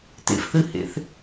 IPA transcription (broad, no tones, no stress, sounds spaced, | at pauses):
t ḛ f θ ɨ h ḛ θ